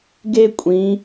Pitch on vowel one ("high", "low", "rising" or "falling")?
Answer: high